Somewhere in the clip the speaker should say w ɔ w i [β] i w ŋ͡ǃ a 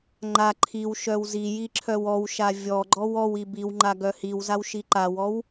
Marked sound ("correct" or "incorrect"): incorrect